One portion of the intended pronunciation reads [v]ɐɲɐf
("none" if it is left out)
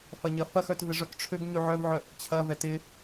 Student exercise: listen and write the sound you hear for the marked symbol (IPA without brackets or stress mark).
f